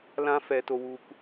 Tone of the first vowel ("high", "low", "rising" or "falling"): high